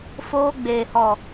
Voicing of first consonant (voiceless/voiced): voiceless